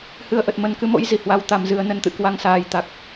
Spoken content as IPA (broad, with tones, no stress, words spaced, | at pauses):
hɨ˨˩ə̯ʔə˨˩t̚mə˨˩n kɨ˨˦mo̰˧˥jzi˧˩ hwa˨˩wt̪a˨˩mzɨ˨˩ə̯ nə˧nt̪ɨ̰˧˨kwa˧ŋ saː˨˩jt̪a˨˩k̚